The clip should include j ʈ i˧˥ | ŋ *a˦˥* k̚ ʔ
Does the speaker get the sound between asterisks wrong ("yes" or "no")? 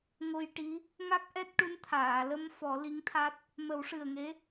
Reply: no